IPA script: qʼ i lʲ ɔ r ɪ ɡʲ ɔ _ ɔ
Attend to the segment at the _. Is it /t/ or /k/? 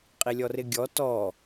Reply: t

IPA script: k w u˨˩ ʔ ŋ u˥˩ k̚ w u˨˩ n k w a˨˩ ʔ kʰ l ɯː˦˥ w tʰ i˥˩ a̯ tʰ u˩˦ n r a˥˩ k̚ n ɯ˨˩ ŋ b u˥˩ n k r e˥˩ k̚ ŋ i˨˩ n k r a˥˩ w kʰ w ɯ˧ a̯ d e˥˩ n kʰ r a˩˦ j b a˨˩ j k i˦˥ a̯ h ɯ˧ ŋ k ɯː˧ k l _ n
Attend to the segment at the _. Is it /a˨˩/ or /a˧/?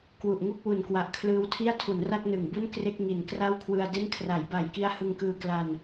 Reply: a˧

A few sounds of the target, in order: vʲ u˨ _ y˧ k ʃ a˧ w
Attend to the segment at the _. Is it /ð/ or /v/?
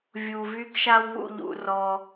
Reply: v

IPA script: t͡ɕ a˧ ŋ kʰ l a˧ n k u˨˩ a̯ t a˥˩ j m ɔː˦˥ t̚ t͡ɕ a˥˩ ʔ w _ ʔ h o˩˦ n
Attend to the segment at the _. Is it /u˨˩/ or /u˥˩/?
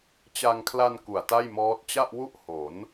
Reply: u˥˩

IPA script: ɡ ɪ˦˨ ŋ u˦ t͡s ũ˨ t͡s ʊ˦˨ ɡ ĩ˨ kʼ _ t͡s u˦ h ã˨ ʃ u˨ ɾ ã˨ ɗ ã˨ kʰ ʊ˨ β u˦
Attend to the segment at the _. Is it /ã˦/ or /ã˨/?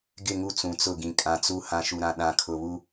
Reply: ã˨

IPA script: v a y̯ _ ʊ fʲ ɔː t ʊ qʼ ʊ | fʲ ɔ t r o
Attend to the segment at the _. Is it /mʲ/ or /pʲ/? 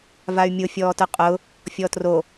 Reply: mʲ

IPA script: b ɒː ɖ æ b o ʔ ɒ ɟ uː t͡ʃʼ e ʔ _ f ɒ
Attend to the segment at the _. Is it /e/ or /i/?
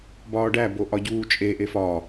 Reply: e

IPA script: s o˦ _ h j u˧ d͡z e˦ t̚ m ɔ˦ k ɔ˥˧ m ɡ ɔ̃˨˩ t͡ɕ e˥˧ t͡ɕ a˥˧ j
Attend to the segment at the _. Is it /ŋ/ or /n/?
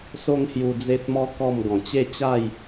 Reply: ŋ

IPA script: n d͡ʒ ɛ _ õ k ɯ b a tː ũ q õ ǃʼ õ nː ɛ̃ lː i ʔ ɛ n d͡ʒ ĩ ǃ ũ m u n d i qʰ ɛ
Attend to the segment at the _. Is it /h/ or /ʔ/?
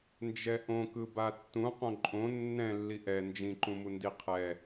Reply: ʔ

